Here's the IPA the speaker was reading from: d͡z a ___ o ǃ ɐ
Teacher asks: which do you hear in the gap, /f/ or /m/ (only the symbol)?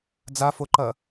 f